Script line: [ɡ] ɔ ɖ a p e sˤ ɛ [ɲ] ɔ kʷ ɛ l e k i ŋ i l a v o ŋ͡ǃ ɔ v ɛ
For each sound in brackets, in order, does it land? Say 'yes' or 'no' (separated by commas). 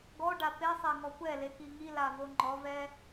yes, no